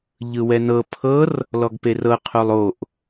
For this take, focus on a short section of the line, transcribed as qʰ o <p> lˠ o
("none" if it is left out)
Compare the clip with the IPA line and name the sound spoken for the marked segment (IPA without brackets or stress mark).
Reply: none